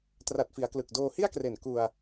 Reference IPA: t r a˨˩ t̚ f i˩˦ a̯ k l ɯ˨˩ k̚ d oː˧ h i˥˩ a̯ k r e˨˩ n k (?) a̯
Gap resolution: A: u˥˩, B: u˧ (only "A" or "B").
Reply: B